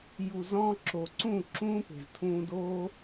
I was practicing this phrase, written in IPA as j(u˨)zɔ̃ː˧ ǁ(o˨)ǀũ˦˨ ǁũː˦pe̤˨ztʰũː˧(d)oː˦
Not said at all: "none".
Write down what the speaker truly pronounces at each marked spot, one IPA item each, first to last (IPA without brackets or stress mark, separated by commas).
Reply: u˨, o˨, d